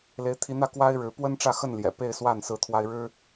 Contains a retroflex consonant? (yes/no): yes